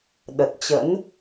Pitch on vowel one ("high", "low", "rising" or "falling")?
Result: low